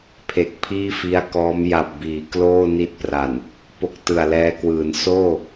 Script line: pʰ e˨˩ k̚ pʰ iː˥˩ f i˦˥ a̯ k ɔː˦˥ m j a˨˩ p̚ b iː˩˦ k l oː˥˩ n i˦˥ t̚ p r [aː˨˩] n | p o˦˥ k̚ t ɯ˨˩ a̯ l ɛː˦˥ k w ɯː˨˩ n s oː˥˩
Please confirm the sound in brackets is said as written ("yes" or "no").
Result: no